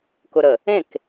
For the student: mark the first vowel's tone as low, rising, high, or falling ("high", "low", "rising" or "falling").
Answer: low